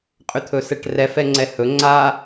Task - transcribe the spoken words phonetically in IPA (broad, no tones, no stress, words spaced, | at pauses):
qʼʏt̪ʰɵsɛʈrɛf ɛŋ͡ǀɛhɵ ŋ͡ǀa